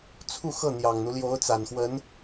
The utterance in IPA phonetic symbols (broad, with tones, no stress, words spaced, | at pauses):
t͡sʰu˥˧xɤ˥˩n̪jɑ˨˩ŋn̪u˦ ljo˧˥ʊ̯t͡sa˨˩nxwə˧˥n